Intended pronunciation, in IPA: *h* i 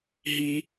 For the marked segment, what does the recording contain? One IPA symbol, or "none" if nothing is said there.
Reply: ɦ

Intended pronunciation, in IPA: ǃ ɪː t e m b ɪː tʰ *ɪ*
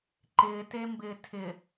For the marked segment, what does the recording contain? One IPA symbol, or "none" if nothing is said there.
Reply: ɪ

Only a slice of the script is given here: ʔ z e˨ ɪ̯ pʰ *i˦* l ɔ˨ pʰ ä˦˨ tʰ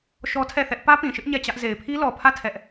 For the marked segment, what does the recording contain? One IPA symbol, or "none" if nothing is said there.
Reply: i˦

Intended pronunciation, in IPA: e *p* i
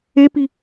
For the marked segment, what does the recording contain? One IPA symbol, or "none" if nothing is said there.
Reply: p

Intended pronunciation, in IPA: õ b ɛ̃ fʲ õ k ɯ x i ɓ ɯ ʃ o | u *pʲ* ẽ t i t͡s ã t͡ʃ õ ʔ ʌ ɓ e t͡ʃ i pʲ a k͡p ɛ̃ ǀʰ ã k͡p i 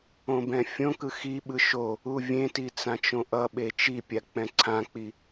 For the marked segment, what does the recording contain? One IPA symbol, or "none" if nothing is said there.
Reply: vʲ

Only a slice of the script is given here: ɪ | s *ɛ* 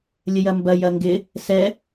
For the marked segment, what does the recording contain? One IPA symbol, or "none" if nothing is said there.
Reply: ɛ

